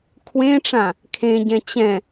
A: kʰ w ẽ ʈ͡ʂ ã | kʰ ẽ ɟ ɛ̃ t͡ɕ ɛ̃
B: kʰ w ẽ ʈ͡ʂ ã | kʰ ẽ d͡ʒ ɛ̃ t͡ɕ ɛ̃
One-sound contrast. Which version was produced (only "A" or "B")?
A